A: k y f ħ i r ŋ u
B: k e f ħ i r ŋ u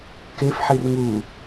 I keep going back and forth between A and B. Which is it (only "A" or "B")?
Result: B